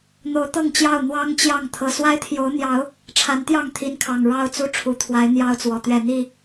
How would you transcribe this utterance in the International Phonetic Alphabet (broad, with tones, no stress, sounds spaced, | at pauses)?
n̪ o˨˦ ʊ̯ t̪ ɤ˥˨ ŋ t͡ɕ j ɑ˥˨ ʊ̯ n̪ w ɑ˦ ŋ t͡ɕ j ɑ˥˨ ŋ t̪ʰ ɤ˨˩ s w a˦ ɪ̯ t̪ʰ j o˨˦ ʊ̯ n̪ j ɑ˨˦ ʊ̯ | ʈ͡ʂʰ a˨˦ n t̪ j ɑ˥˨ ŋ t̪ʰ i˨˦ n kʰ ɑ˨˩ ŋ ɻ ɑ˦ ʊ̯ t͡s u˦ ʈ͡ʂʰ u˨˩ t̪ʰ w a˨˦ ɪ̯ n̪ j ɑ˦ ʊ̯ t͡s w ɔ˨˩ t̪ ɥ ɛ˥˨ n̪ i˥˨